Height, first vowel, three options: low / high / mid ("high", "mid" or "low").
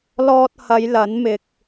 mid